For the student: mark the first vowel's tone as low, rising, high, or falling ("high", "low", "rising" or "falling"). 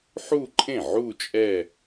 falling